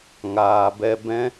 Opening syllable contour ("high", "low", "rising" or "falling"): low